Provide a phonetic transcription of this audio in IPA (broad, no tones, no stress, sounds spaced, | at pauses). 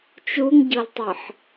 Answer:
t͡ʃ u ŋ ɟ ɤ l tˤ ɤ ħ